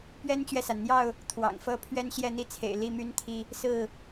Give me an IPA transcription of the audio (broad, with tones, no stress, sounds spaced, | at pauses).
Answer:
p ɥ ɛ˦ n t͡ɕ ɥ ɛ˨ s a˩ n n̪ j ɑ˥˨ ʊ̯ | t̪ʰ w ɑ̰˨˩ ŋ f ɤ˦ pʰ ɥ ɛ˦ n ɕ j ɛ˥˨ n̪ i˦ t͡sʰ ḛ˨˩ ɪ̯ l i˥˨ m y˦ n t̪ʰ i˦ | s ɹ̩˥˨